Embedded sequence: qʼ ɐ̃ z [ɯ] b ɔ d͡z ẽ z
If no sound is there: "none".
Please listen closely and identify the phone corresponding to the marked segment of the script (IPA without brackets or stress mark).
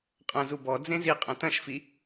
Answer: u